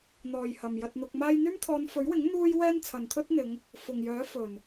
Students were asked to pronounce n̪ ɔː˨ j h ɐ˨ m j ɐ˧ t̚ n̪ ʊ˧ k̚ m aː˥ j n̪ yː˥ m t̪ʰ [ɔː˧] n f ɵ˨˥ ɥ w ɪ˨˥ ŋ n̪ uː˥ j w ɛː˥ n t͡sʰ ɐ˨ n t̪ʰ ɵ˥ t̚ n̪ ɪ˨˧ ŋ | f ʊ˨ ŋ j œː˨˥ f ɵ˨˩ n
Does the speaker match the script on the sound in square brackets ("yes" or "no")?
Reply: yes